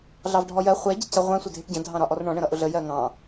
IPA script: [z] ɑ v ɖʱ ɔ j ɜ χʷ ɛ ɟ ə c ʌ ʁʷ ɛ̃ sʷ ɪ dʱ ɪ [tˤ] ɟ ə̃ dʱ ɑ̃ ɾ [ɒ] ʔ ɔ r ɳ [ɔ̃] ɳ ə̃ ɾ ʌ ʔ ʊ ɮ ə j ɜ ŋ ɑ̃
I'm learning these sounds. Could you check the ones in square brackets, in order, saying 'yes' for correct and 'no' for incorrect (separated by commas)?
no, no, yes, yes